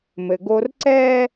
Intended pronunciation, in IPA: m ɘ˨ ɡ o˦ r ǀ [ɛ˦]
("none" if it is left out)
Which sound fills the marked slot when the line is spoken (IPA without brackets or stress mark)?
ɛ˦